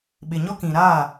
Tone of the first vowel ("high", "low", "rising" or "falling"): low